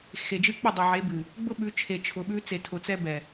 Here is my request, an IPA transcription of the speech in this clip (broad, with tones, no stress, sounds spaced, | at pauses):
x e˨ d͡ʒ ɨ˦ k͡p ʊ˦˨ dˤ ɛ˨ ʕ e˨˦ b ɨ˨ | ɡ͡b ʊ˦ ɓ ʉ˨˦ t͡ʃʰ e˨ t͡ʃʰ ʊ˨ ɓ ʉ˦ t͡s e˨ tʰ ʊ˨ t͡s ɛ˦ b ɛ˨